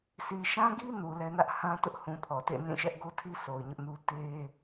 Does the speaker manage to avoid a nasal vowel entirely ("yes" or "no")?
no